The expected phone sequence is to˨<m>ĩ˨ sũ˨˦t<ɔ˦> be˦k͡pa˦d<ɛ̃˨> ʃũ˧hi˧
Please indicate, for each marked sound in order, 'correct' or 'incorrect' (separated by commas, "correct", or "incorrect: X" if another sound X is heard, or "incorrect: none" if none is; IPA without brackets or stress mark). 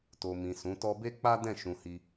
correct, correct, incorrect: ɛ̃˦˨